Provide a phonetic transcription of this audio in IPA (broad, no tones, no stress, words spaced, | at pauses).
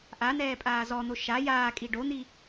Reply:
ʔan̪ɛːpʼaː zɔn̪o ʃa jaːkʼi ɖon̪i